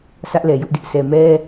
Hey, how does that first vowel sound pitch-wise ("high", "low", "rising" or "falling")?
high